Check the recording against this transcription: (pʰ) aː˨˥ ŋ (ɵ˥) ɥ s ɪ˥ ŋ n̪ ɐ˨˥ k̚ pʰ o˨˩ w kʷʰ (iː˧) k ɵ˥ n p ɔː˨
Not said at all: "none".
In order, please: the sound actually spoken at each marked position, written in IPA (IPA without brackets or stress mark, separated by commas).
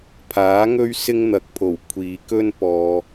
pʰ, ɵ˥, iː˨